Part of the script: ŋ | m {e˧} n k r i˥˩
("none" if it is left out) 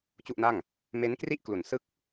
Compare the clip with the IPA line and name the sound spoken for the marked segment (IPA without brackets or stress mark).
e˦˥